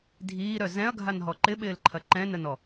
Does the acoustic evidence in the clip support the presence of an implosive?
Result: yes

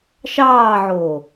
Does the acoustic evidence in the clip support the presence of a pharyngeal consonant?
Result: yes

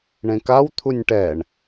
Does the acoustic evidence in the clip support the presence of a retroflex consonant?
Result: yes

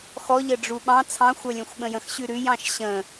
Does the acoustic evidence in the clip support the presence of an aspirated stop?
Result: yes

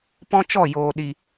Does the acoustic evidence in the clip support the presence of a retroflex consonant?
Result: no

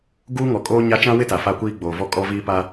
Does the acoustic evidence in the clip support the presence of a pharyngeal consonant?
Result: no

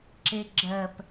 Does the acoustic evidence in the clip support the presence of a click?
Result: yes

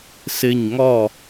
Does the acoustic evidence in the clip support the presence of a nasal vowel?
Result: no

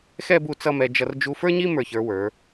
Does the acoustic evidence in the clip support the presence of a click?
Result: no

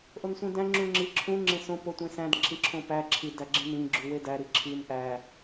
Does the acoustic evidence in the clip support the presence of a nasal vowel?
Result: yes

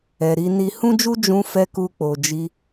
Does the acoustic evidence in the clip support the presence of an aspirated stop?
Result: no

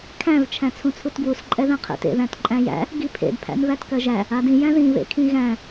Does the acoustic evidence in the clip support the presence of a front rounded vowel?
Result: no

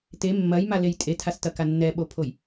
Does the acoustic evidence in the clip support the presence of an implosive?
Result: yes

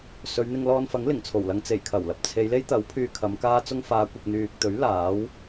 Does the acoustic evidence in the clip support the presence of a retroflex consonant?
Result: no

